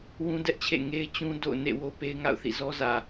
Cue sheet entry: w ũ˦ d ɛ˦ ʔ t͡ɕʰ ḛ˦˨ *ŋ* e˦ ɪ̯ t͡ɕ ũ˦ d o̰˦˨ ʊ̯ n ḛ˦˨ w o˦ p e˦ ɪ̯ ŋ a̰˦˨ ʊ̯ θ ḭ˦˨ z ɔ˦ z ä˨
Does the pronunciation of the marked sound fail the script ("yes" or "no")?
no